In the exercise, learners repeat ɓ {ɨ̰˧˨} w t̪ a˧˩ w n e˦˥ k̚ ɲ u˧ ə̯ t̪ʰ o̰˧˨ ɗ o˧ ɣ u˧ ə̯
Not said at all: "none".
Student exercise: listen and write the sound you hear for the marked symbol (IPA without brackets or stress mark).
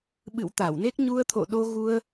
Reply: ɨ̰˧˨